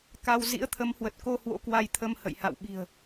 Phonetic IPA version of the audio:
k a˧ w z ḭ˧˥ ə̯ t̪ʰ ə˨˦ m h w ə˨˩ t̚ k o˧ h w o̰˧˥ k w a˧ j t̪ʰ ə˧ m h ə̰˧˨ j h a̰˧˨ w ɓ i̤˨˩ ə̯

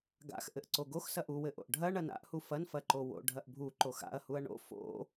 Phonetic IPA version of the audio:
ɡ a̰ x ʔ ɘ ʔ ǀ o ɡ o x s ɐ ʔ u w ɘ ʔ o̰ ʔ ɖʱ ɐ ɳ ɐ n a̰ ʔ h u f ɐ n f ɐ ǃ o w o̰ ɖʱ ɐ ʔ bʱ u ǃ o x a̰ ɐ̯ h u ɐ̯ ɳ o̰ f o̰

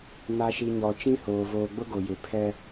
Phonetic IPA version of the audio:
n a˨ ʃ i˨ ɲ ɔ˨ t͡ʃ ĩ˦ h oː˨ v oː˨ ɡ͡b ʊ˦ ɡ o˨ j ɪ˨ pʰ ɛ˦

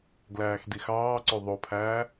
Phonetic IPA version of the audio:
ɡ l æː x d i x ɑː ǀ ø ðˤ o pʰ æː

